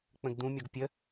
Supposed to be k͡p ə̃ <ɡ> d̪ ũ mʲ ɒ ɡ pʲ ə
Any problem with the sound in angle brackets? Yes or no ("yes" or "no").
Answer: no